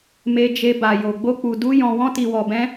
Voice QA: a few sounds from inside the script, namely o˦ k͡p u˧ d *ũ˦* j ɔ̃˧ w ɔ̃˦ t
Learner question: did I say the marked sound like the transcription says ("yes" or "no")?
no